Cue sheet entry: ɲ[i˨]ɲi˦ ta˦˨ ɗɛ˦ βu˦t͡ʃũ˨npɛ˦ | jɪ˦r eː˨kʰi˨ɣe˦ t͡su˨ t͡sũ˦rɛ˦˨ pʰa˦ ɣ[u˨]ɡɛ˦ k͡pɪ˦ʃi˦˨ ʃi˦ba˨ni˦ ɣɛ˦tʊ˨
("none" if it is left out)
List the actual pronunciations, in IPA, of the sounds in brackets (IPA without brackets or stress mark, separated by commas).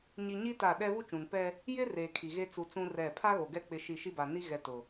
i˨, o˨